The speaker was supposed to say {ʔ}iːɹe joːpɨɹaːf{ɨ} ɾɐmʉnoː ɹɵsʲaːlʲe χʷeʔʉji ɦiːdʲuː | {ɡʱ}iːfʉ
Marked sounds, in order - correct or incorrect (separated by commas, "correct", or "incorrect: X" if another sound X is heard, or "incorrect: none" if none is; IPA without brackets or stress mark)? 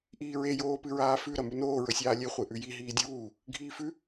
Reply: correct, incorrect: ʉ, correct